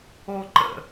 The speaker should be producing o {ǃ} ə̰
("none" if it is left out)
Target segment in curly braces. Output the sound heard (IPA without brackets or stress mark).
ǃ